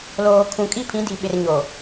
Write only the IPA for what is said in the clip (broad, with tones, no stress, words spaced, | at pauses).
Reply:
loː˨kʰũ˨kʼi˦pʰĩ˨˦ di˨ ɓɪ˨r ɲo˨